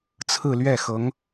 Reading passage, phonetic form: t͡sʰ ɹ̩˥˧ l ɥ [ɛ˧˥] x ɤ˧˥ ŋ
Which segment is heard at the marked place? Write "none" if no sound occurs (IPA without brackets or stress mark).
ɛ˥˩